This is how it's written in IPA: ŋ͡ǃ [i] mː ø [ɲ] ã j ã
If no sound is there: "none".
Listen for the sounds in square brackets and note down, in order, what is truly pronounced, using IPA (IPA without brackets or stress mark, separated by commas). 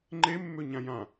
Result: e, ɲ